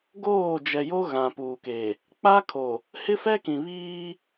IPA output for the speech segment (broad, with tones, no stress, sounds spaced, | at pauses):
ɡ oː˦˨ d͡ʒ ɛ˨ j o˦ ɣ ã˨ p uː˨ k e˨ | k͡p a˦ kʰ o˨ | h ɪ˦ f ɛ˦ k ĩ˨ β iː˦